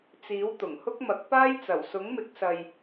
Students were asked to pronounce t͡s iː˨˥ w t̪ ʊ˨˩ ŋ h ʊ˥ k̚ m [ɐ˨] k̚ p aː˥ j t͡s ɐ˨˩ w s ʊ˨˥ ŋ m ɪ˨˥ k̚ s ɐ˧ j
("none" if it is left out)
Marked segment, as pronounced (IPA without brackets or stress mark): ɐ˨˥